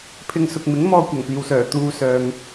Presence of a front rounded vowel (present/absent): present